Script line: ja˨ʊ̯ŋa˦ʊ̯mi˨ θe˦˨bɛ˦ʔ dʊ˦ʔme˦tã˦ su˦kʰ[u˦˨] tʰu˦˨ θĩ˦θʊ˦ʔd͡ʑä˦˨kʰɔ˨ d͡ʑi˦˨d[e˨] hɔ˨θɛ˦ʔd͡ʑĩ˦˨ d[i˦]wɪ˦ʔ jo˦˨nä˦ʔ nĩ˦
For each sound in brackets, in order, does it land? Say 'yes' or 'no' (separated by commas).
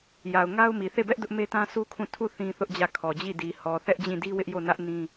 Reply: no, no, yes